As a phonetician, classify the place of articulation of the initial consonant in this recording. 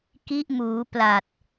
velar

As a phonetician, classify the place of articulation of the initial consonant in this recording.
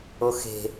velar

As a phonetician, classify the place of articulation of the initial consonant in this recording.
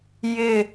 palatal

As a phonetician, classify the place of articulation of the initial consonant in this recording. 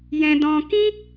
palatal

